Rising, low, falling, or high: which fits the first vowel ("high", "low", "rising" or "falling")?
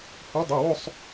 rising